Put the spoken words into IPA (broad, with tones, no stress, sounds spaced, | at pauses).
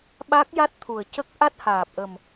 ɓ a˦˥ k̚ j a˦˥ t̚ t̪ʰ u˨˩ ə̯ c ə˦˥ k̚ ʔ a˦˥ t̚ h aː˨˩ p̚ ʔ ə˨˩ m